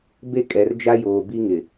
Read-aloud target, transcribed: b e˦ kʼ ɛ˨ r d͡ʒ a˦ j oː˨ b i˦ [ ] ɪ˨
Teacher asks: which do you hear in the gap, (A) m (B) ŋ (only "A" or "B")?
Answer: B